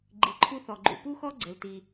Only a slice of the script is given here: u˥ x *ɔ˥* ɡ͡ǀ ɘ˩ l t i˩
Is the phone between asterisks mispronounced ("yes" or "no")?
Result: no